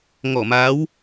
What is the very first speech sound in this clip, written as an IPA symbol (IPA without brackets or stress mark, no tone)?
ŋ